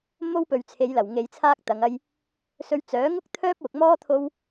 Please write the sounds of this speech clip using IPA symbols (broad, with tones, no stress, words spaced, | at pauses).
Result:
mo˥wpɵ˨ɥ t͡sʰe˨˧jlɐ˨˩wŋe˨˧jt͡sʰaː˥k̚ t̪ɐ˨˧ŋɐ˥j | sɵ˧ɥt͡sœː˨˥ ŋʊ˥k̚ t̪ʰœː˥p̚wʊ˨k̚mɔː˥ t̪ʰo˥w